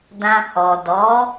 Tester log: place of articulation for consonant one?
alveolar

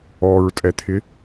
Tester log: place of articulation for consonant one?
alveolar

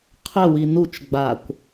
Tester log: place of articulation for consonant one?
uvular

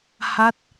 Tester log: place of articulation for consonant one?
glottal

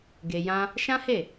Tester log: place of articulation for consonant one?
velar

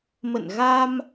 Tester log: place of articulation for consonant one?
labial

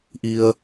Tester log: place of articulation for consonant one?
glottal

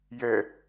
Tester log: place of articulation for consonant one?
palatal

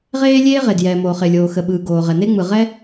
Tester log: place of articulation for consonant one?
uvular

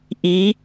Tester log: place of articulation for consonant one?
glottal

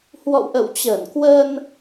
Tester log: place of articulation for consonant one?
glottal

